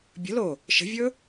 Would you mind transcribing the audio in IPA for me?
bʲə̤lo | ʃə̤vʲɵ

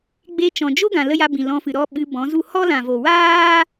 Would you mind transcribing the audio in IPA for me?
ɡ͡be˧ t͡ʃɔ̃˨d͡ʒo˦ɡã˨ lə˦ja˧bĩ˨ lɔ̃˧fɨ˨ɾɔ˦ ɓɨ˧bɔ̃˨˦zu˦ hɔ˦lã˨ vo˨waː˦

